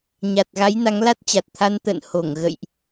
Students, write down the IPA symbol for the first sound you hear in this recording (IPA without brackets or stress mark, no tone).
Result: ɲ